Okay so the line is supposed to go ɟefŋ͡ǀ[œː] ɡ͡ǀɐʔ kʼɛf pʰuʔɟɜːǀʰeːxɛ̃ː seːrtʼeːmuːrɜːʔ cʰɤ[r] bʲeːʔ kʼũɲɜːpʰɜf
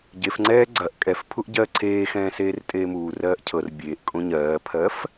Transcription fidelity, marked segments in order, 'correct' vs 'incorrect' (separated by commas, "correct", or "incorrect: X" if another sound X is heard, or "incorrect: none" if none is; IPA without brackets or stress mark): incorrect: ɛː, correct